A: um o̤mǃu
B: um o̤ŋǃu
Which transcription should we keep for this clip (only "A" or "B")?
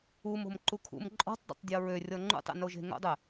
A